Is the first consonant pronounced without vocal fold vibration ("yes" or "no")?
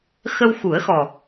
yes